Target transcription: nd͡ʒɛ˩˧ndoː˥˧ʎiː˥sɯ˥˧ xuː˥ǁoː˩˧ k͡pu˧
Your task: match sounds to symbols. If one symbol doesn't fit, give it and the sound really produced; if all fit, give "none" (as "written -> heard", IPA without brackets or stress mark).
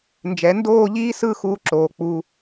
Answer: none